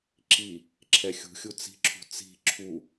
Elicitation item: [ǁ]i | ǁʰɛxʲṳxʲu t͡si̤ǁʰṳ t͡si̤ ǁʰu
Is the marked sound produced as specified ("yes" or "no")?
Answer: yes